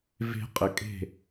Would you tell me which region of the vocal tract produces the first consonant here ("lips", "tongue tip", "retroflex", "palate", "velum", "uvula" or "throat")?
lips